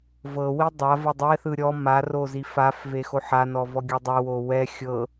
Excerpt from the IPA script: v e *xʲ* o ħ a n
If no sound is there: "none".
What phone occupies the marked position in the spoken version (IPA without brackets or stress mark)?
x